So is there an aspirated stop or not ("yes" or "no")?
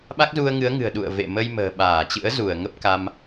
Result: no